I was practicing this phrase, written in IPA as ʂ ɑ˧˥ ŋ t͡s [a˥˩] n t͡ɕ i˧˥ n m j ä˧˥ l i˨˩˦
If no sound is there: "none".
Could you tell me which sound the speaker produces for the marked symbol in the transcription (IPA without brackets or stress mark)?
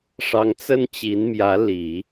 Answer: ə˥˩